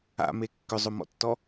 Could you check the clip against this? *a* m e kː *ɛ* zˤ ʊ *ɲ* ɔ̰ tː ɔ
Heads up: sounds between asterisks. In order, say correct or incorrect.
incorrect: a̰, incorrect: ʏ, incorrect: m

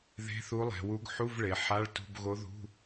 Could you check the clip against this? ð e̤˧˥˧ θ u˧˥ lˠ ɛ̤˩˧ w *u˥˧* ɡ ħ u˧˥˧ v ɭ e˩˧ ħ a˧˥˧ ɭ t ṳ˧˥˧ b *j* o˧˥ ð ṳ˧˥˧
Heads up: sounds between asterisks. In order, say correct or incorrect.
incorrect: u˧˥, incorrect: ɣ

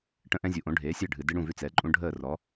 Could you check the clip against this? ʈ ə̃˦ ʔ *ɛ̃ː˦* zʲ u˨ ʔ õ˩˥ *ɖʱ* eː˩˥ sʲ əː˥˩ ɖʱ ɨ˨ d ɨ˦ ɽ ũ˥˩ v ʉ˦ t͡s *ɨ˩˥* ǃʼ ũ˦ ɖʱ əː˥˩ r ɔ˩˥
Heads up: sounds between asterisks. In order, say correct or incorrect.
incorrect: ɛ̃˦, correct, incorrect: ɛ˩˥

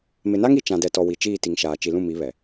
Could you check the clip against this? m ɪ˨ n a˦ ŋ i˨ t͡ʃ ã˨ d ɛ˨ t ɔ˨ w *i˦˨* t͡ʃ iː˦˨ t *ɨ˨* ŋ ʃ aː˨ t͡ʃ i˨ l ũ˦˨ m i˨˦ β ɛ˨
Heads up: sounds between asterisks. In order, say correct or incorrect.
incorrect: i˨, incorrect: i˨

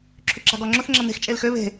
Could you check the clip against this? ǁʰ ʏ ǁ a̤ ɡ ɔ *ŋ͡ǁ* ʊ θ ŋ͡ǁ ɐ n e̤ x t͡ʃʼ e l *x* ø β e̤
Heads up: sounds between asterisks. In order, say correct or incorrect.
correct, correct

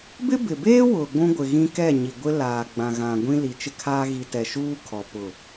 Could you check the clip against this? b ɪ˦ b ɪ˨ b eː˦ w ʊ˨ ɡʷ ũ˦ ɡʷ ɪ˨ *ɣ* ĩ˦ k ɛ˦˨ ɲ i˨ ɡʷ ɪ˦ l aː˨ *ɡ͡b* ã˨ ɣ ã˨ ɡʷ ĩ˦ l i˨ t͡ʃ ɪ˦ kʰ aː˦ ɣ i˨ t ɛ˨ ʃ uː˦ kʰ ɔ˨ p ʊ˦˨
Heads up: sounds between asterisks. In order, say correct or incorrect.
correct, correct

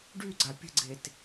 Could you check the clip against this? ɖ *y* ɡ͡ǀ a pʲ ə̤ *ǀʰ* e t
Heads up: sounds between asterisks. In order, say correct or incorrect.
correct, incorrect: ɡ͡ǀ

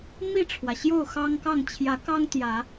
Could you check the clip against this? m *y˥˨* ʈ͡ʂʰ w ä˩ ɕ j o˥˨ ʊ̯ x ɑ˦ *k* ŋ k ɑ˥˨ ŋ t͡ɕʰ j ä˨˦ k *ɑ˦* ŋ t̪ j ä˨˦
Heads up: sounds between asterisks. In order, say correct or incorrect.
incorrect: i˥˨, incorrect: none, correct

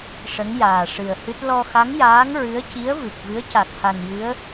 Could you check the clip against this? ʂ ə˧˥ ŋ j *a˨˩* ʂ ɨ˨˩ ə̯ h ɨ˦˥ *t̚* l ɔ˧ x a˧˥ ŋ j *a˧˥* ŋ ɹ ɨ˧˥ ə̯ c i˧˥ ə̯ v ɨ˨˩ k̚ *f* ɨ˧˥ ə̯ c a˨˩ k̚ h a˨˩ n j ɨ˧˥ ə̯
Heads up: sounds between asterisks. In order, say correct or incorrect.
incorrect: aː˨˩, correct, incorrect: aː˧˥, incorrect: v

